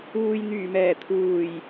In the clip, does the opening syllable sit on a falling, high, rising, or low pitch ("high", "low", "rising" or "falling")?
low